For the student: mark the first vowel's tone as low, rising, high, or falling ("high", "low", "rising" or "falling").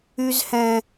high